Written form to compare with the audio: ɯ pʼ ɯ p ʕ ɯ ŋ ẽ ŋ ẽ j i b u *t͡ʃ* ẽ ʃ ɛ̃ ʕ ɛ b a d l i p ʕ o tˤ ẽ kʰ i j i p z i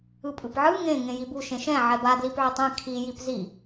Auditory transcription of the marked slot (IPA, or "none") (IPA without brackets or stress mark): ʃ